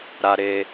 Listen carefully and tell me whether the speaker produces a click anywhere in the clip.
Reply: no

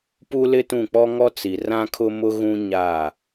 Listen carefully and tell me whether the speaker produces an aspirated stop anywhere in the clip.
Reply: yes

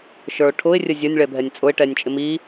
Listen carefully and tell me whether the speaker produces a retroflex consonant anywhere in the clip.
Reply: yes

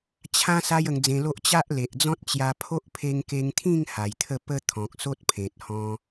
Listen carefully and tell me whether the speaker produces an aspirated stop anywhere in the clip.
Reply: yes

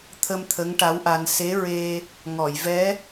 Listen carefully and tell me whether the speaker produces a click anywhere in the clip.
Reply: no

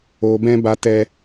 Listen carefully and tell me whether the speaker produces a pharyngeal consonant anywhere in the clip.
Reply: no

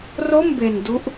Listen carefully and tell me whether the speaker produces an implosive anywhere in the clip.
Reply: no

